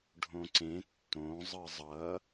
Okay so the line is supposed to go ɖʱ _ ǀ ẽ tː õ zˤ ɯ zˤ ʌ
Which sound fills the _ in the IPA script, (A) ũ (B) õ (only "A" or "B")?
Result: B